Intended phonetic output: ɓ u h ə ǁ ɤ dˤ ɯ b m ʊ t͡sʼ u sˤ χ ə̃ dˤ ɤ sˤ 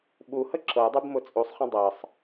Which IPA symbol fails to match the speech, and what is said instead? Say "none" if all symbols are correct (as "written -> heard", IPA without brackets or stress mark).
ɯ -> u